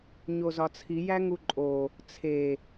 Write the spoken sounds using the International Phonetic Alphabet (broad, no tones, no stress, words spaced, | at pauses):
ɲozɒt͡sʰi jæŋuǃʼo | t͡sʰe